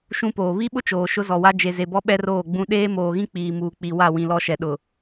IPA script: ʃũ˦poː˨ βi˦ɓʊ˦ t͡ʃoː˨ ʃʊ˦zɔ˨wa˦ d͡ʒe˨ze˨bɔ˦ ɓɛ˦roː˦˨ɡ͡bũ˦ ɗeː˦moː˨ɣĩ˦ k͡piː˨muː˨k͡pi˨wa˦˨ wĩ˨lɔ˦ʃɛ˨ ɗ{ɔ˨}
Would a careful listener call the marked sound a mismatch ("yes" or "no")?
yes